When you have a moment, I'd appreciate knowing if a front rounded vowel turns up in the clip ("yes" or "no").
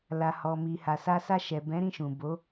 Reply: no